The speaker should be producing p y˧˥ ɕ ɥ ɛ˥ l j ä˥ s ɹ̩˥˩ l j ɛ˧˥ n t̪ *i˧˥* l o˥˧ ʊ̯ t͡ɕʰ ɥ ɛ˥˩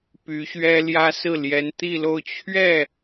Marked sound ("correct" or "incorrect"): incorrect